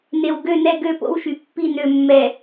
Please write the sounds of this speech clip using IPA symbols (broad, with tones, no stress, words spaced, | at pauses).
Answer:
ne˨wɡø˦˨nɛ˦˨ ɡø˦˨po̰˦wʃy˨pːi˦˨ nø˨mːɛ˨